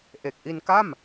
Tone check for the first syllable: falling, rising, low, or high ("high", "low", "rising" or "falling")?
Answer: low